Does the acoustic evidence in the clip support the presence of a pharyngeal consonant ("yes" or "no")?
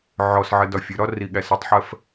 yes